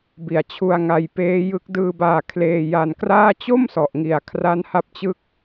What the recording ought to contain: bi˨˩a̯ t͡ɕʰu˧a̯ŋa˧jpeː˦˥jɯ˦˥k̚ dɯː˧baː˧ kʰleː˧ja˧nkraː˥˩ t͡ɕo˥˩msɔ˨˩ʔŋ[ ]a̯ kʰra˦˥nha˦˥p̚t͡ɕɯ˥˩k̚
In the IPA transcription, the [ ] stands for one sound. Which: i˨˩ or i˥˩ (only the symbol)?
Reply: i˨˩